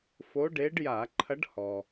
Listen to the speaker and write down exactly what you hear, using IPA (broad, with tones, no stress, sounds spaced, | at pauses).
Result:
f o˧˥ ɖ e˧˥ ɖ j a˧˩˧ ǃʰ ɐ˧˥ ɖ h ɔ˩